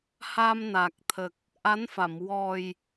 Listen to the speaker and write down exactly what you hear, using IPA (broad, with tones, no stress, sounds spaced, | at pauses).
h a˧ m n a˨˩ k̚ t̪ʰ ə˨˩ k̚ | ʔ a˧˥ n f a˨˩˨ m w ɔ˨˩ j